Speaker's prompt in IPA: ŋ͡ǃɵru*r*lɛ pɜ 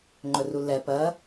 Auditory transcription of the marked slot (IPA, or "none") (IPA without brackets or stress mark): none